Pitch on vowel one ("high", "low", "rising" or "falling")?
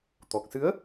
low